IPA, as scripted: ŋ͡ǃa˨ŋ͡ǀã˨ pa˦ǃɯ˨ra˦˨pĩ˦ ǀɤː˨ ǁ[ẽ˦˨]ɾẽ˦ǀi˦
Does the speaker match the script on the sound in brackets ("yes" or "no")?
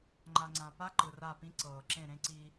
yes